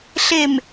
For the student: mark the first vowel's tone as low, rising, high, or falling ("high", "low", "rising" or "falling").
low